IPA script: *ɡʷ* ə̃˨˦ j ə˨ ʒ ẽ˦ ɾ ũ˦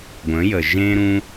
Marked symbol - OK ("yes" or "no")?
yes